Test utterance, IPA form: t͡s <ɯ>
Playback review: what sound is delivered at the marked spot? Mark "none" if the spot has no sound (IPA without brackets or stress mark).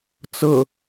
ɤ